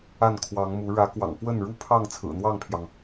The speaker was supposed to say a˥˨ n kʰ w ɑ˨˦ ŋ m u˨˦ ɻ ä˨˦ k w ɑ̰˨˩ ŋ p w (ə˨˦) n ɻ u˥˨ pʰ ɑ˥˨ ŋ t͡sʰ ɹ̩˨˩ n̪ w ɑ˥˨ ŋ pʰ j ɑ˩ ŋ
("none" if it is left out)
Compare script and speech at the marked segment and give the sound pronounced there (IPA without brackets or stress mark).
ə˥˨